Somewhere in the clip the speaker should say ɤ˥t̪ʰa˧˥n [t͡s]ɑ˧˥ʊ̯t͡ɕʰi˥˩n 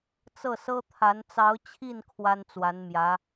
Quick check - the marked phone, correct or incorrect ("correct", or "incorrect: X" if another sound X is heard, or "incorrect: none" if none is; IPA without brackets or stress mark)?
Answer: correct